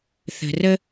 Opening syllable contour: low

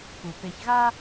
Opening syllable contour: low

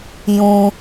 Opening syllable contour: low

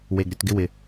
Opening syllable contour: low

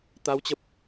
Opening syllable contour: rising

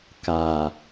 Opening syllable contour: low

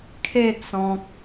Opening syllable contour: falling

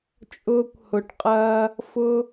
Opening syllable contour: high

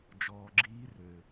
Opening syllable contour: low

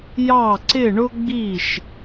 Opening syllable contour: falling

